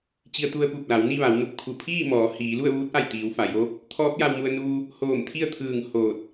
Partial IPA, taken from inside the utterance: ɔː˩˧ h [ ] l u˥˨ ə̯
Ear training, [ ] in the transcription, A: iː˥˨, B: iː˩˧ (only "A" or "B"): B